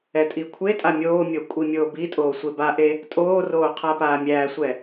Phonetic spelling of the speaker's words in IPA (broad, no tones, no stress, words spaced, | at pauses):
ɛtʼikʷʰetʼa mʲoːmʲo kʷʼimʲoːbitʼoː sʷebaʔe | tʼoːroː qʰapaːmʲæːsʷɛ